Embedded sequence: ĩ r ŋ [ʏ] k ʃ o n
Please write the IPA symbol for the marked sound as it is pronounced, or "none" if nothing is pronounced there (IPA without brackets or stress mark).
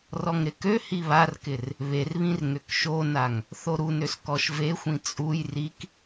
ʏ